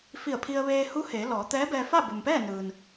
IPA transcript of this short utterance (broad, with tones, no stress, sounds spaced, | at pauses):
f i˧˩ ə̯ pʰ i˧ ə̯ ʋ eː˧ h u˧˥ h eː˩˧ l ɔː˩˧ t̪ ɛː˧˥ b ɛː˧ f a˥˨ b u˩ m p ɛː˥˨ n ɯː˩ n